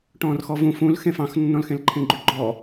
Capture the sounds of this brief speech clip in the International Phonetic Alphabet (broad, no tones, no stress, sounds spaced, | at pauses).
ʈ ɔ̃ː r x ɔ v ũ f ũ l x ẽ f ɑ̃ x nː ɔ̃ l x ẽ l ǃʰ ẽ ɡ͡ǃ ʉ ɡ͡ǃ ɔ